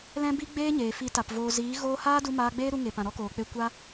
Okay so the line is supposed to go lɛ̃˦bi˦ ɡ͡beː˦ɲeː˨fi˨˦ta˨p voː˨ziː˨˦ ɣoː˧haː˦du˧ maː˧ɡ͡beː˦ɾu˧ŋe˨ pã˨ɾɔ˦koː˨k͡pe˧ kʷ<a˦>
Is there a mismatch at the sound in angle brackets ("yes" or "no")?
no